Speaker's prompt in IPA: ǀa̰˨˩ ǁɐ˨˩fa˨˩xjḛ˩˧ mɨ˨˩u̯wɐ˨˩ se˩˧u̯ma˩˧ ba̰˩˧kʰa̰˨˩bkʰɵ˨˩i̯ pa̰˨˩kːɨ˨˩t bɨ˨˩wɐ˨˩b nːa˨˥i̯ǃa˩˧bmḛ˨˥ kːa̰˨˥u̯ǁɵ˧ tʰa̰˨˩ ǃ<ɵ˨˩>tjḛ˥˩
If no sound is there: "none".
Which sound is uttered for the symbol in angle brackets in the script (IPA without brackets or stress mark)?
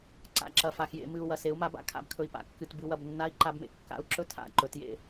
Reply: ɵ˩˧